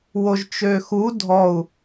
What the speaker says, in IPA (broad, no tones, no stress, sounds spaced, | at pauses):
w o ʒ t͡ʃ ø x u dʱ ɔ u̯